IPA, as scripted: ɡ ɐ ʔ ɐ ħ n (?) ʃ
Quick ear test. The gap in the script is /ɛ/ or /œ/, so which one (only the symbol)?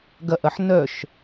œ